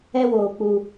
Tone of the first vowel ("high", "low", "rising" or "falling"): high